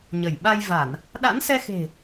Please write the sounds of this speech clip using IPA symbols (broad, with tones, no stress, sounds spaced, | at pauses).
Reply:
ɲ ə˧˩ j ɓ a˧ j v a˧˩˨ n | ɗ a̰˧˥ n s ɛ˧ x e̤˨˩